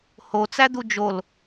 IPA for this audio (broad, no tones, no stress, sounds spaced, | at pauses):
h o t͡s æ d̪ u d͡ʒ o l